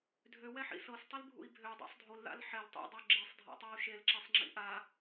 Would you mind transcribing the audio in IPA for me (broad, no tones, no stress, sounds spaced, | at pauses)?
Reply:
dʱ ø w ɛ ħ ḭ s ɤ s tˤ i l bʱ ṵ i̯ bʱ ø dˤ a̰ sˤ dʱ o l ð a̰ l ħ ɛ l tˤ ḭ dˤ ø ɡ͡ǁ i sˤ dʱ a̰ tˤ a u̯ ʃ e l ǁ e sˤ ŋ͡ǁ ḭ ʔ a